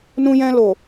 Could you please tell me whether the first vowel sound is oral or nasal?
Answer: nasal